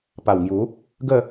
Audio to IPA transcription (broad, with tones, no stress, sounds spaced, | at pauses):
p a˨˩ w ŋ j u˨˦ | ɡ ə˥˧